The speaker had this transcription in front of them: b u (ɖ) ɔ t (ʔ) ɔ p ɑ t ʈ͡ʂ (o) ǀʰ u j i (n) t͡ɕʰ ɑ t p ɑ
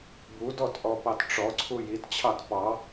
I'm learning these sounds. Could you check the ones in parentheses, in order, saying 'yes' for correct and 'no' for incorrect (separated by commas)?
no, yes, no, no